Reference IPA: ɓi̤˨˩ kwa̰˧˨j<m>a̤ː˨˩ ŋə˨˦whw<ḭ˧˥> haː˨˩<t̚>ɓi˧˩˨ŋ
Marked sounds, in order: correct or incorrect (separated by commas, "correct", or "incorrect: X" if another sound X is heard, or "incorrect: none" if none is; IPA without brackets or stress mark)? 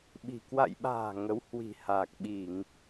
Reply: incorrect: ɓ, incorrect: i̤˨˩, incorrect: k̚